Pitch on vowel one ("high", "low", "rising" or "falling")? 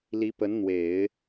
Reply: rising